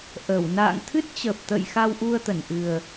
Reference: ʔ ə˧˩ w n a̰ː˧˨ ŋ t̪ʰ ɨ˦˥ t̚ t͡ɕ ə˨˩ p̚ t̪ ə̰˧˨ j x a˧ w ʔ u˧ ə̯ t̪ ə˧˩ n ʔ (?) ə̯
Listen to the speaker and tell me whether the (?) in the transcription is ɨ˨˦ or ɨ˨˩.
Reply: ɨ˨˩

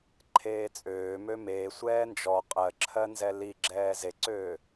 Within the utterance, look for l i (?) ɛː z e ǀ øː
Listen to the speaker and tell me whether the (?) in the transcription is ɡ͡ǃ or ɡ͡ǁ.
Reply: ɡ͡ǁ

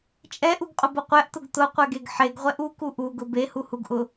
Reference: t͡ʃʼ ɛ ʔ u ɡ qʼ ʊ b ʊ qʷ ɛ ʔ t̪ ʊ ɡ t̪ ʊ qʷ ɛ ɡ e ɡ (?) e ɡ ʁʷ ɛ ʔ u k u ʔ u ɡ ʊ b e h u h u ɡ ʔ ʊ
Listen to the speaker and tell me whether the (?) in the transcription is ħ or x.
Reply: ħ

